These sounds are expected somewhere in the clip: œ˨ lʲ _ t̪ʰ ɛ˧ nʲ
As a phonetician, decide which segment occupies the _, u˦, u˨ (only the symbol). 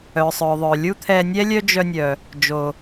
u˦